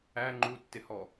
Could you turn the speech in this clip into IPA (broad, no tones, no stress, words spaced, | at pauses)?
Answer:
æ ŋ͡ǃutːɪhɔ